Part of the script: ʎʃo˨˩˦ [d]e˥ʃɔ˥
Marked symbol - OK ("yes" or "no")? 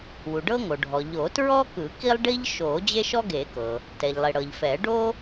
no